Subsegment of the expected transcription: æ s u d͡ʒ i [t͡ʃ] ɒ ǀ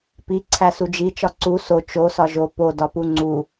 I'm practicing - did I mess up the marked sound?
no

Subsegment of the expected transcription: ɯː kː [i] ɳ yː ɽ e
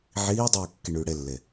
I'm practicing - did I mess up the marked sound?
no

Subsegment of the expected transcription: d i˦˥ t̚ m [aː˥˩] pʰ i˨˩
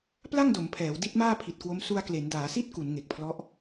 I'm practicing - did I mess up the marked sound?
no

